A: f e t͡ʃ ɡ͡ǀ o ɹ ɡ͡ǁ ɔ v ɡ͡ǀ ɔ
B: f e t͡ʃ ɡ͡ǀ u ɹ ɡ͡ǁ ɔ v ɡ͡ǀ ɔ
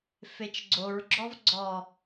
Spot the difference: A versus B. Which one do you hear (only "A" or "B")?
A